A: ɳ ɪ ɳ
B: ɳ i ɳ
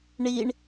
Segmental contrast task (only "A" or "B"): B